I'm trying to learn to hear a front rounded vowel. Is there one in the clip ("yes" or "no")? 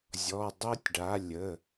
no